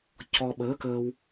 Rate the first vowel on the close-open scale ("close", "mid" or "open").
mid